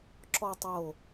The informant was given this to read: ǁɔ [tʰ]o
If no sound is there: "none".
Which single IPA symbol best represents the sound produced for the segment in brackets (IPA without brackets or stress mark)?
tˤ